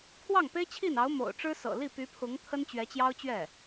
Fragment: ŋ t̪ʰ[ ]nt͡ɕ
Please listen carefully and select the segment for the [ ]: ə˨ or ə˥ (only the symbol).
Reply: ə˥